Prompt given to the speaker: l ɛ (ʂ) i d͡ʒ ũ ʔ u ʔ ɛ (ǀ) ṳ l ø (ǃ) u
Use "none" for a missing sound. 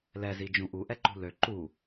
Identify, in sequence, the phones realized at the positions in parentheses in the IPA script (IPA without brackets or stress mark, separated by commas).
z, ǃ, ǃ